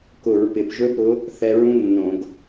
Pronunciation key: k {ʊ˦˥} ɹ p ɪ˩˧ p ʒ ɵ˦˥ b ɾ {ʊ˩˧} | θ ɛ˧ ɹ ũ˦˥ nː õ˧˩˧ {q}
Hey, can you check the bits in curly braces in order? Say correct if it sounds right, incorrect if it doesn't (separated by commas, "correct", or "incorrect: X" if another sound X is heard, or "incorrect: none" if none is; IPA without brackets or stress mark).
incorrect: ʊ˧˩˧, incorrect: ʊ˨˥, incorrect: ɡ